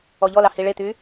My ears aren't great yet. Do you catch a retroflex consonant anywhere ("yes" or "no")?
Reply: yes